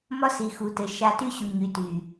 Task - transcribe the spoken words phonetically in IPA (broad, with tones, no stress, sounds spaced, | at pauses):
m ɒ˦ s i˨ x u˨ t ɘ˨ ʃ a˦ t y˦ ɕ u˨ ɲ y˨ t y˨